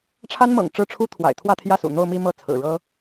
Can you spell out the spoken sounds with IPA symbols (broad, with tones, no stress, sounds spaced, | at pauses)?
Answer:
ʈ͡ʂʰ a˥ n m ɤ̰˨˩ ŋ ʈ͡ʂ ɻ̩˥˩ ʈ͡ʂʰ u˥ t̪ʰ w a̰˨˩ ɪ̯ t̪ʰ w ä˥˧ t̪ʰ j ä˥˩ s ṵ˨˩ n̪ o˥˧ ʊ̯ m i˥˧ m ɤ˥˩ t͡sʰ ɹ̩˨˩ ɻ ɤ˥